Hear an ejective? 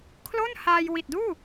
no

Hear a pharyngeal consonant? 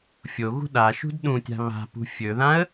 no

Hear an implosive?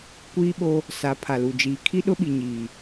yes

